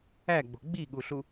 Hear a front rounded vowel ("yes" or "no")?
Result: no